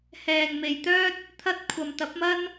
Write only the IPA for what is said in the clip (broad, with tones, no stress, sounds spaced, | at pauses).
h ɛː˨ ŋ m e˨ j t̪ œː˥ t̚ | t̪ʰ ɐ˧ t̚ kʷʰ ɐ˨ m t̪ ɐ˨˥ p̚ m ɐ˥ n